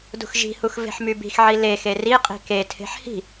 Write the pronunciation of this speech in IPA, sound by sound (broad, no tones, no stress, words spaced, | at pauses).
dṳxʒi̤hux ve̤ħmybi̤xʕi lexe riqʼi̤ ketʰe̤ħ hi̤